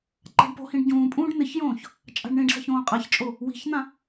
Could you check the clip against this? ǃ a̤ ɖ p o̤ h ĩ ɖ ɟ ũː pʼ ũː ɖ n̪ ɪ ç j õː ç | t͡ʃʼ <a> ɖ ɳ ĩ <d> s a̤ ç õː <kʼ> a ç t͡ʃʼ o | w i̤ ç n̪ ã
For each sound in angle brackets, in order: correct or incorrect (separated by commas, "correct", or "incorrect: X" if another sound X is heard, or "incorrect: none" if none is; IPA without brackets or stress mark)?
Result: incorrect: a̤, incorrect: ɖ, incorrect: qʼ